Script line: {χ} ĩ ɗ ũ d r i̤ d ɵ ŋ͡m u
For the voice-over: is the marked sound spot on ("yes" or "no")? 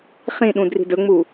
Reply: yes